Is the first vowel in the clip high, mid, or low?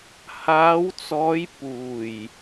low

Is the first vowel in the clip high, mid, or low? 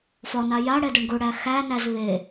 low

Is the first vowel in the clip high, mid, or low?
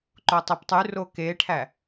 mid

